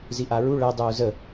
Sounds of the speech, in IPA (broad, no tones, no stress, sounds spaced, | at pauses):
z i ʔ a ɹ u ɭ ɛ dˤ uː z ə